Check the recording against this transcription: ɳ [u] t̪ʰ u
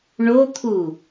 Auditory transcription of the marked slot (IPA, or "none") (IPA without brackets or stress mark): o